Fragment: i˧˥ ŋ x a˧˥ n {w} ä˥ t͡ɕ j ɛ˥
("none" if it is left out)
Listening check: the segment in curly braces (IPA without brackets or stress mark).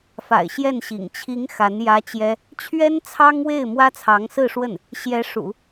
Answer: j